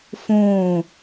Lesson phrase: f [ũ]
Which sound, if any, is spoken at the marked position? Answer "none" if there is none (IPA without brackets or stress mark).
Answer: ũ